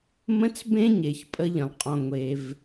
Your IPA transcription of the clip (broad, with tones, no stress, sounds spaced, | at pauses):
m ə̃˦ t͡s b ẽ˦ ɲ e˩ ç pʼ ə˦ ʎ ə̃˩ lˠ qʼ ɔ̃˨ ŋʷ e˨ v